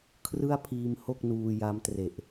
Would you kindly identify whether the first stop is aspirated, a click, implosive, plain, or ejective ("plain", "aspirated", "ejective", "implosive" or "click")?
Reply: aspirated